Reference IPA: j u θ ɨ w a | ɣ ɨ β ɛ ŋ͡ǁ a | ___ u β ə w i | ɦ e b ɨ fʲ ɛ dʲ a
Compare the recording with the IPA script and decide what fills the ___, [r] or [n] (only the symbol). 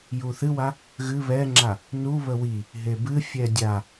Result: n